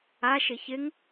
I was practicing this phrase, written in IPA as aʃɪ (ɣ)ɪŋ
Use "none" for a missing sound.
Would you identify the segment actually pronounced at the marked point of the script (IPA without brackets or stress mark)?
ç